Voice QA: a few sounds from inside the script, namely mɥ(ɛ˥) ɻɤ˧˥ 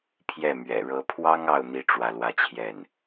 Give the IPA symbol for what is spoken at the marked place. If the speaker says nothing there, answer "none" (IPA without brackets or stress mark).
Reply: ɛ̰˨˩